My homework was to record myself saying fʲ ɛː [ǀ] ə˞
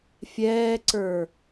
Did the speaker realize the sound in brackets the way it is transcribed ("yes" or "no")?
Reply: yes